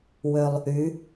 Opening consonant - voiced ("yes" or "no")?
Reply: yes